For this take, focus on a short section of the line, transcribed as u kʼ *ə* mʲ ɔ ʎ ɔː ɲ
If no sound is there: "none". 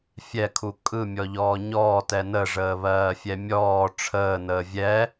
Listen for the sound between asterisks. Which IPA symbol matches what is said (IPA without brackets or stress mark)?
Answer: ɯ